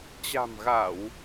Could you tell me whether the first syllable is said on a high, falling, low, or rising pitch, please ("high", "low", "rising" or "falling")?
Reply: low